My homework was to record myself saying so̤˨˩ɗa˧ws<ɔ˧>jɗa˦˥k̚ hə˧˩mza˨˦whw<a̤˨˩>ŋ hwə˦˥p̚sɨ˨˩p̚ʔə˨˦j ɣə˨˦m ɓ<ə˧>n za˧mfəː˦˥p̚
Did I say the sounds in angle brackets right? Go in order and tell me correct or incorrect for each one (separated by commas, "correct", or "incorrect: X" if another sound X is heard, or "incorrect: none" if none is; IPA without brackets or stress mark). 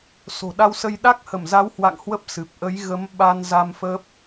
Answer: incorrect: ə˧, incorrect: a̰˧˨, incorrect: a˧